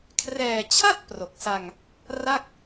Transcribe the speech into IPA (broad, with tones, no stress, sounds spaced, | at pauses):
kʰ r ɛː˨˩ t͡ɕʰ a˥˩ t̚ p r o˨˩ k̚ s a˧ ŋ | r a˥˩ k̚